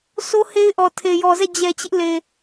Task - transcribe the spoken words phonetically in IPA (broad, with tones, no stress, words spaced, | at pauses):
sʰo˦he˦ɪ̯ʔɔ˨ tʰe˨ jɔ˨zɛ˦˨ d͡ʑɛ˨t͡ɕɪ˦ʔ le˨